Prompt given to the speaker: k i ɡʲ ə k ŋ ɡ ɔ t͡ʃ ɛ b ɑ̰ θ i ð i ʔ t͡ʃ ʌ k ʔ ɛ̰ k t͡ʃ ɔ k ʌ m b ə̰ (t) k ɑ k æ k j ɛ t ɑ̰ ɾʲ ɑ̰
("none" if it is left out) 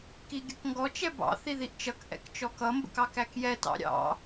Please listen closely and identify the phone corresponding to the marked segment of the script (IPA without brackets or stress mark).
none